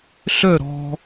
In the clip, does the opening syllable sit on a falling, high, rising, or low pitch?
falling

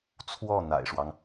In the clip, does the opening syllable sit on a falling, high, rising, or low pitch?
falling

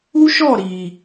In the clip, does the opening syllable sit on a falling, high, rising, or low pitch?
high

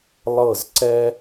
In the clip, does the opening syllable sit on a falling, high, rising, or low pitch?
falling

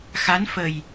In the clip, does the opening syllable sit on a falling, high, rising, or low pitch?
rising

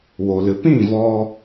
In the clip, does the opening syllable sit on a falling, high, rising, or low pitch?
low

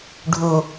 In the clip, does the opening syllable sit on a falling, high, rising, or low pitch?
low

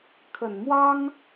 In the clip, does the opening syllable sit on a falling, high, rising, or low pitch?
low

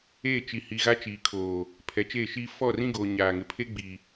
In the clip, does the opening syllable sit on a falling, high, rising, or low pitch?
falling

